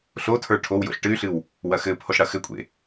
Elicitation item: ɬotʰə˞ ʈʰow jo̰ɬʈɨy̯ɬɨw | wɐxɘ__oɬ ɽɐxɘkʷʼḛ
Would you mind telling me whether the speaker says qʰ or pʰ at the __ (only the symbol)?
pʰ